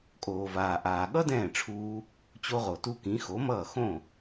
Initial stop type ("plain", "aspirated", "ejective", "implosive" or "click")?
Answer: ejective